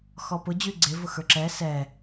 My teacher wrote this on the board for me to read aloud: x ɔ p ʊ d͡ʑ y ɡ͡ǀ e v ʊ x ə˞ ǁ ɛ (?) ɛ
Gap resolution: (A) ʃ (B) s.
B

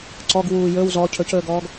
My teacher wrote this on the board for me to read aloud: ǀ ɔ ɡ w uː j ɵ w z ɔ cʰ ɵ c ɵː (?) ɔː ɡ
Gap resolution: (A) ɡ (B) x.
A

